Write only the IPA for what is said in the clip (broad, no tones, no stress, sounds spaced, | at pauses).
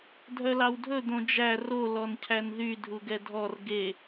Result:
dʱ œ l ɑ w dʱ ɵ d̪ õ d͡ʒ æ r o l ɔ n cʰ æ n ð y dʱ u ɡ ɛ dʱ ɔ r ɡ e